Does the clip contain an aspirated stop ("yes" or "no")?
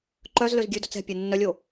no